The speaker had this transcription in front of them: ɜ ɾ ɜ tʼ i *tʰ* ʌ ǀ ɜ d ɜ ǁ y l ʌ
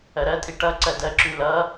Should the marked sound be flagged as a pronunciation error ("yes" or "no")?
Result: yes